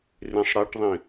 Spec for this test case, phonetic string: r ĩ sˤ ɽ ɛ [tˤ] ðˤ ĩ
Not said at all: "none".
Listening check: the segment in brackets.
ʈ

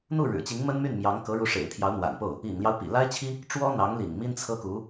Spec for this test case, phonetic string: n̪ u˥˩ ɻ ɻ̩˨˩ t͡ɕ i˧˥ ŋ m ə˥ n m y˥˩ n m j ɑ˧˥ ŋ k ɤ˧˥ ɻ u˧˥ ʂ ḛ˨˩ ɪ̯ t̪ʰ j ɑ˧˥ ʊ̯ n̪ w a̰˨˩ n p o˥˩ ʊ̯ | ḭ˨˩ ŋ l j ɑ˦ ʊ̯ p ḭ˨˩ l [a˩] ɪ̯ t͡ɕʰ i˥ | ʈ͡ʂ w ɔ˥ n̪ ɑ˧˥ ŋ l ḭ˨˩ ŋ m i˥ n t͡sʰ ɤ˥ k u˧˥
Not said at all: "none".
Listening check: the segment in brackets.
a˥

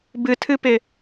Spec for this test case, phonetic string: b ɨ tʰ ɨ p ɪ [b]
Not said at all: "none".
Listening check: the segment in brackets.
none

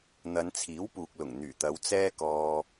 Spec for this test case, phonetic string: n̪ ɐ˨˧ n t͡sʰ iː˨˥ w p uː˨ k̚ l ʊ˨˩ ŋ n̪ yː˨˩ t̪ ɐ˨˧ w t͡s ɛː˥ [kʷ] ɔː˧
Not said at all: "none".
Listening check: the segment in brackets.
k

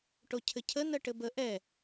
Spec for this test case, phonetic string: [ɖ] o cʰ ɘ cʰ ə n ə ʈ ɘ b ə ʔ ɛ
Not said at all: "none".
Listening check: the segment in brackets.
ʈ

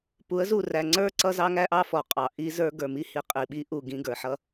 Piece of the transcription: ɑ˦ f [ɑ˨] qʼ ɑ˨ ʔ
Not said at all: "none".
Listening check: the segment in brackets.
ɔ˨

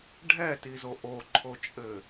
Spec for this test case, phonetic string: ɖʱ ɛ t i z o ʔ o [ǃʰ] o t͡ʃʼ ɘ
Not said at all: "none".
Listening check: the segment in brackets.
ǃʰ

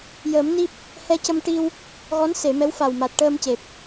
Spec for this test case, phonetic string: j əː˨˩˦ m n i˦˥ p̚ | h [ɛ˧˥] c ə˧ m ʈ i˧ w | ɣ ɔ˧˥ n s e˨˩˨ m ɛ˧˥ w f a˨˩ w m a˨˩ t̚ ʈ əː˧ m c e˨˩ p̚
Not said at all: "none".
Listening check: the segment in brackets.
ɛ˧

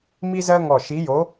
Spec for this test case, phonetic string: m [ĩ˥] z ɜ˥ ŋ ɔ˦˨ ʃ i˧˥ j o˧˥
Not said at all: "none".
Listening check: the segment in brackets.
i˥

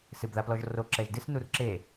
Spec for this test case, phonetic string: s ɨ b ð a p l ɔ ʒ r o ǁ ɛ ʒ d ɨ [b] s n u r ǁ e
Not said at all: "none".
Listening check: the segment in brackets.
none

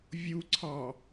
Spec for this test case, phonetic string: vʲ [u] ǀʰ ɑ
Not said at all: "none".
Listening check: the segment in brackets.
u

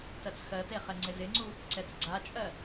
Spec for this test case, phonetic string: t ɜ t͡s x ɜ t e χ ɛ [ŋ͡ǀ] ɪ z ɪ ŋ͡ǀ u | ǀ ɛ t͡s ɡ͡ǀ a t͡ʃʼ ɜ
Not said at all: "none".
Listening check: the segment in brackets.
ŋ͡ǀ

